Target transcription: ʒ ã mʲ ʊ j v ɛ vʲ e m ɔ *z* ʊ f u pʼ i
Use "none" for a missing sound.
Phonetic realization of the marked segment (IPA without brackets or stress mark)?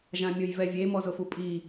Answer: z